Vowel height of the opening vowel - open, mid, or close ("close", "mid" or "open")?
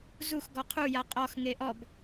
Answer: close